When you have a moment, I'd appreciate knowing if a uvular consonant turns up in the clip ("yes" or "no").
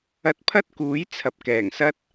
no